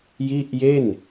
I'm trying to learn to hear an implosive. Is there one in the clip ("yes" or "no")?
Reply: no